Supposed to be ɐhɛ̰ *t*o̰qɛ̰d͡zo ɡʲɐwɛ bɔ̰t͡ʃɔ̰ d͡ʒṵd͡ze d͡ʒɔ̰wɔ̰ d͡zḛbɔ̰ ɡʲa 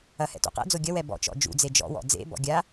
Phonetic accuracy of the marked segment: correct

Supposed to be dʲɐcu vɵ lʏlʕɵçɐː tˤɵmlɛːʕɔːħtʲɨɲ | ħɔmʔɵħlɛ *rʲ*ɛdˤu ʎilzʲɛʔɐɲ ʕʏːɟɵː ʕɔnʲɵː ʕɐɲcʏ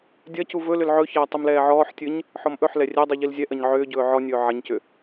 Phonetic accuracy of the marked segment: correct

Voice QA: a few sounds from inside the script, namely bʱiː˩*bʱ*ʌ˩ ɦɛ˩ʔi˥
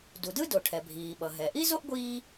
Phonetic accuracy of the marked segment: incorrect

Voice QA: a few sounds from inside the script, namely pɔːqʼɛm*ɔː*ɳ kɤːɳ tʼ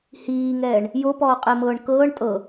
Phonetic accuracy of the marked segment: incorrect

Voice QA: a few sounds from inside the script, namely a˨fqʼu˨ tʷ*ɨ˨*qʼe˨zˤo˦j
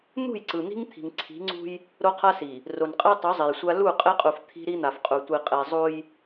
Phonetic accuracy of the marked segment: incorrect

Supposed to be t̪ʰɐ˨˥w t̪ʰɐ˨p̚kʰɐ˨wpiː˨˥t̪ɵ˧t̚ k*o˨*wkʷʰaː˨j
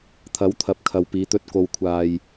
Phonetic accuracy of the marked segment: correct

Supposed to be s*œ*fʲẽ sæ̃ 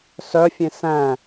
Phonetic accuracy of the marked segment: correct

